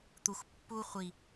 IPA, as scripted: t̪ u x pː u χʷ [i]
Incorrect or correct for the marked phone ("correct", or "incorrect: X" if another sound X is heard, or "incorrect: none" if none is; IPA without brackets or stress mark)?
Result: correct